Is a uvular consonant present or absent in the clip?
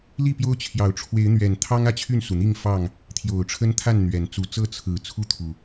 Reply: absent